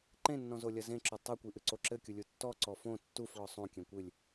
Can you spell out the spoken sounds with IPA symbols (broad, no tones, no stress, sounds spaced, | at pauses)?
ǃ ẽ nː ɔ̃ z o lʲ ɐ z ẽ ǁ o tˤ ɛ kʷ i ʔ ɨ ǀ o ǁ ɘ kʲ u lʲ u tː ɔ ǀ ɔ f õ tː u f ɭ ɔ sˤ õ kʲ ẽ kʷ ɨ lʲ